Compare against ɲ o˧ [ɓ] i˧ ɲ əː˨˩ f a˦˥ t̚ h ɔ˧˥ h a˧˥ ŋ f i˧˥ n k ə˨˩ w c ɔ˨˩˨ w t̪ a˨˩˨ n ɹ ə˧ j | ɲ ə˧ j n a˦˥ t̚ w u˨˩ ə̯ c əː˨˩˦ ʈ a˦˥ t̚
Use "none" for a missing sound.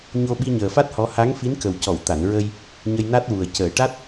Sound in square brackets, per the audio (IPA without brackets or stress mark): ɓ